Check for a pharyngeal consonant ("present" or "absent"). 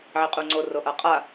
present